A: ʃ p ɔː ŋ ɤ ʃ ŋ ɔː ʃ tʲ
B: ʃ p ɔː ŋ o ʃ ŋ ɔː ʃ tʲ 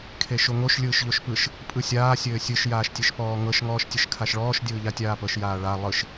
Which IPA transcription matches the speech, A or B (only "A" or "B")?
A